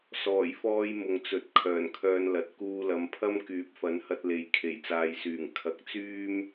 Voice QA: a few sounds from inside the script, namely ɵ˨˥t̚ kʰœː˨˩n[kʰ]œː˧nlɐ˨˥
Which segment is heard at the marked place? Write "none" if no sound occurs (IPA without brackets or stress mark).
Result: kʰ